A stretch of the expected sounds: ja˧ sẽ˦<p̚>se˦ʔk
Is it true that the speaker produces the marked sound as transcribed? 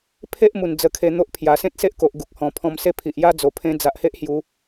no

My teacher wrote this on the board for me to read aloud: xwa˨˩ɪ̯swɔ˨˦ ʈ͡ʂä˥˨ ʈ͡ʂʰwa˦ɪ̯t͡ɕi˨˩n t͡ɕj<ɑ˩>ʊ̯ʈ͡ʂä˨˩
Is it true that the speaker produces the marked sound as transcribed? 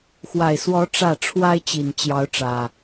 no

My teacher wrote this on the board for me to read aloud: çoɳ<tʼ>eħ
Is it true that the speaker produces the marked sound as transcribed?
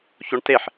no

